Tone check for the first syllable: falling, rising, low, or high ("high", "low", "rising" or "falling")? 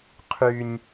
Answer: high